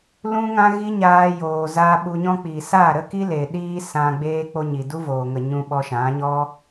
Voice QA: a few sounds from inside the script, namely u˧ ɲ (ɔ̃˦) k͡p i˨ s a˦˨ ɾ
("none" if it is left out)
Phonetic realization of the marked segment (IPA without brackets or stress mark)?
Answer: ɔ̃˦